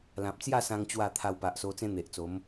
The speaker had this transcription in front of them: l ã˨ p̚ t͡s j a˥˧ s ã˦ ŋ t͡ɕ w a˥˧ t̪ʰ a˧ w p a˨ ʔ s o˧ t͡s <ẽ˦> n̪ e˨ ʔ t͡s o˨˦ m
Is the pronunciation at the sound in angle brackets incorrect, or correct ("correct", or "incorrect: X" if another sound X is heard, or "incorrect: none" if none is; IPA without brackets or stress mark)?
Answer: correct